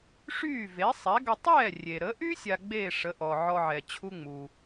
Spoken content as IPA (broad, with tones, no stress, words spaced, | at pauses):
ʂyː˥˩ve˩˥ sˤɛ˩˥ɡə˧ tˤɛː˥˩rʲe˩ɾə˩˥ʔy˥ sʲa˧ɡ͡beː˥˩ ʂə˩˥ʔɔ˩ʕɔ˧ʕɛ˩ t͡ɕʰu˥ŋ͡mu˩